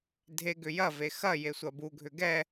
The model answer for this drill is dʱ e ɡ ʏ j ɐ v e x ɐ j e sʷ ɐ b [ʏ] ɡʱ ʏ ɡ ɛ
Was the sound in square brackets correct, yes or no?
no